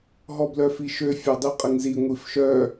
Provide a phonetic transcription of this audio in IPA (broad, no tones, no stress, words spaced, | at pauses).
ɦɔblœfiʃø fʲɔdˤiqʼəŋzi ŋʷifʃœ